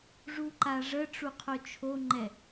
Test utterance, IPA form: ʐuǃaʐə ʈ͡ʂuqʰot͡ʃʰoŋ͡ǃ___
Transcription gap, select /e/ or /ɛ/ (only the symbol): ɛ